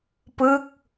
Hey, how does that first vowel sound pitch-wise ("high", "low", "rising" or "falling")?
falling